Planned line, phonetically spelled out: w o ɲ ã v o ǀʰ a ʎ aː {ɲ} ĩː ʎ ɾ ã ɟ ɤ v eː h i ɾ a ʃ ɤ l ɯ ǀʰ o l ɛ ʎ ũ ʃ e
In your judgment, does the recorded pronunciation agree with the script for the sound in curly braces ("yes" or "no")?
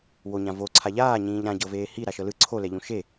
yes